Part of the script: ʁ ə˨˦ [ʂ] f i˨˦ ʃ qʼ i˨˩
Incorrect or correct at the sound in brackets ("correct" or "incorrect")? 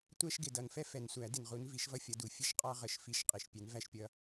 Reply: incorrect